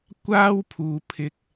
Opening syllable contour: high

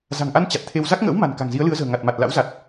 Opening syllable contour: low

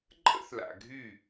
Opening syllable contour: high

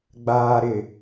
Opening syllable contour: low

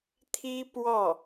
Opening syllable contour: high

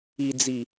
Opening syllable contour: low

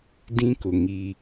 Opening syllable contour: high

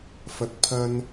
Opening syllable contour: low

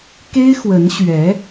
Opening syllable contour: high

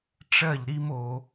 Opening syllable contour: falling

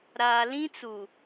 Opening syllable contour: low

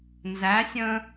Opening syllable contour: rising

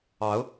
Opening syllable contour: rising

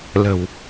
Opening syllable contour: low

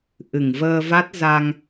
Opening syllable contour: low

